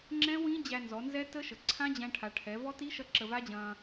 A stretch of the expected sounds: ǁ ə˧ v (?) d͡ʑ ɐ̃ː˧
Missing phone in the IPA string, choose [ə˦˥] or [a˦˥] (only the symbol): a˦˥